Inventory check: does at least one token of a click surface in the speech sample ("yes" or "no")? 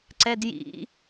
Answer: yes